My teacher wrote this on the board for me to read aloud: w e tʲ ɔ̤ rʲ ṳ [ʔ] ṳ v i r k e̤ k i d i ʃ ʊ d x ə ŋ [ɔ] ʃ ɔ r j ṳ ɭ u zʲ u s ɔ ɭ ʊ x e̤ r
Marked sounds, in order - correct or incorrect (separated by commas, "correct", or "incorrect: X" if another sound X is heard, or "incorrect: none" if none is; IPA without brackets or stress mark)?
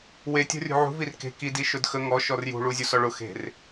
incorrect: ʕ, correct